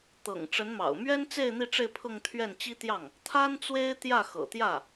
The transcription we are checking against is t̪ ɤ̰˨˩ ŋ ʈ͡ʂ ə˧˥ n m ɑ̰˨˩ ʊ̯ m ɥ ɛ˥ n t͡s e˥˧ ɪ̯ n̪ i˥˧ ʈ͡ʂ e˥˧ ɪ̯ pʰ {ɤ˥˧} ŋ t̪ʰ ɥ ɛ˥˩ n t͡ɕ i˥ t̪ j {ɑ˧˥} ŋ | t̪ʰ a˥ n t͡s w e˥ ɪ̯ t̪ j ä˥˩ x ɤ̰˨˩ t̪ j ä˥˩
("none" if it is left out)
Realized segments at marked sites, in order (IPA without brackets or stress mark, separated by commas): ɤ˥˧, ɑ˥˩